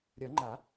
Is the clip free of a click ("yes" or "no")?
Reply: no